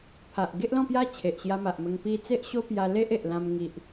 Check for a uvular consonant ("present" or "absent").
absent